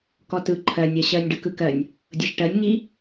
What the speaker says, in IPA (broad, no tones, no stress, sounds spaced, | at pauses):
k ɔ t ɯ ǃʰ ɜ nʲ ɜ ɕ ɜ nʲ ɖ ɯ k ɯ k ɜ nʲ | dʲ ɤ ʃ ʈ ɜ nʲ ŋ i